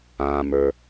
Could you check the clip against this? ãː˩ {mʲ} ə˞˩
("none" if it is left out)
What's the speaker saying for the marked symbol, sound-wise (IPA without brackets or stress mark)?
m